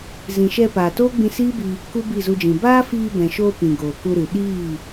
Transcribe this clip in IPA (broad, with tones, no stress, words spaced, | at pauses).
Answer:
zĩ˨ʃɛ˧ paː˨toː˦ɡ͡bĩ˧ siː˦bi˧ | ku˦bi˦˨zu˧d͡ʒĩ˨ baː˦fiː˧bɛ̃˨ʃoː˧ pĩ˨ ɡoː˨ku˧ɾɨ˨ ɗiː˦˨